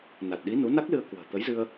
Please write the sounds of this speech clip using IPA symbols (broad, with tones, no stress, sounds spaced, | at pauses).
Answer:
n a˨˩ t̚ ɗ i˨˦ n u˨˦ n a˦˥ k̚ l ɨ˧ ə̯ k w ə̤ː˨˩ t̪ ə˨˦ j z ɨ˧ ə̯